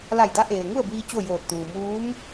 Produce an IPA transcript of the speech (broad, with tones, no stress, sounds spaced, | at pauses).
l a˧˩ j d a˧˥ ʔ eː˩ ŋ u˥˨ ə̯ b iː˧ t͡ɕ o˥˨ j oː˧˩ t̚ t̪ uː˩ m uː˧˥ m